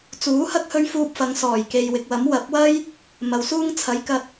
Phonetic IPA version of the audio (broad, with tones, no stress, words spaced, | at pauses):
t͡suː˨˥hɐ˥k̚hɵ˧ɥ fuː˧p̚fɐ˨˧ŋ sɔː˨˩jke˨jwɪ˨k̚wɐ˨˥m wɐ˨˥p̚wɐ˥j | mɐ˨wsuː˥ŋt͡sʰɐ˨˥jkɐ˧t̚